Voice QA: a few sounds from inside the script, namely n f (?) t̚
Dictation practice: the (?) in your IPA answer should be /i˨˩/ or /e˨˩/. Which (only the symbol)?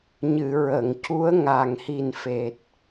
e˨˩